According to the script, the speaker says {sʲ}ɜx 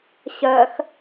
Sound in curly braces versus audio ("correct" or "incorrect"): incorrect